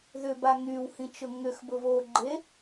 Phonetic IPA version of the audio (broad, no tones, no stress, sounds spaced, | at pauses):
ð ʏ b a ŋ y w h ĩ t͡ʃ ʊ ŋ ʏ x b ʊ β o ɡ͡ǃ e